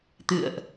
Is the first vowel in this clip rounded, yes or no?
no